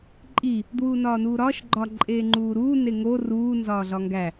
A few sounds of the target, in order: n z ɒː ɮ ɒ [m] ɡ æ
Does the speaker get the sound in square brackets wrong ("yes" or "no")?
yes